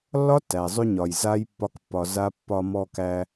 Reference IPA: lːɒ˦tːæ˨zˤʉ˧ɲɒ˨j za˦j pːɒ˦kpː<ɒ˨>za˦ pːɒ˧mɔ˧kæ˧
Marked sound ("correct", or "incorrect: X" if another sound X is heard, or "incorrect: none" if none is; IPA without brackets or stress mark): incorrect: ɒ˧